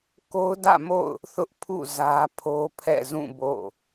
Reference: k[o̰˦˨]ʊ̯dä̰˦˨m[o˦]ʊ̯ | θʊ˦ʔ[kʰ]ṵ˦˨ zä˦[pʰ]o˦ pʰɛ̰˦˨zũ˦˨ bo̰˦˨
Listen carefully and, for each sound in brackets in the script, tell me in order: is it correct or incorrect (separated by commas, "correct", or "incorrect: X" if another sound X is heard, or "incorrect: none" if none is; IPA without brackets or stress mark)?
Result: incorrect: o˦, incorrect: o̰˦˨, incorrect: pʰ, correct